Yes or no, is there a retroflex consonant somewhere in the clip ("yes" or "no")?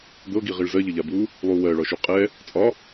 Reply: yes